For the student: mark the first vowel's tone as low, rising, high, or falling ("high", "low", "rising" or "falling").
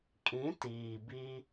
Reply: rising